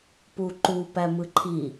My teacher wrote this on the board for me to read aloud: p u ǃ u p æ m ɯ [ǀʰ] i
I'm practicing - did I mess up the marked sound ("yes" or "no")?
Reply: yes